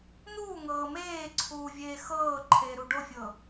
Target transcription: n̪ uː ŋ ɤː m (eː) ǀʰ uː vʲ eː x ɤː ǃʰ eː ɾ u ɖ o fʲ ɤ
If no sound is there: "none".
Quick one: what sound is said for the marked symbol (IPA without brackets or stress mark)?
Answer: eː